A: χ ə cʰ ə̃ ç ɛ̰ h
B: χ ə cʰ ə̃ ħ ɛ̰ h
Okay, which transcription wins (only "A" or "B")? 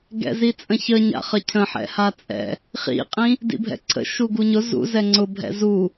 B